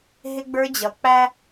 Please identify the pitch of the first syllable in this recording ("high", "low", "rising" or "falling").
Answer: high